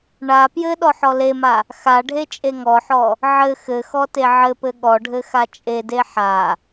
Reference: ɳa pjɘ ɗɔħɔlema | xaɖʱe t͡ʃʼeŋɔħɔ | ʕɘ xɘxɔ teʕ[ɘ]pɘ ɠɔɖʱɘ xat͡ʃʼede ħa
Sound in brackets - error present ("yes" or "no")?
no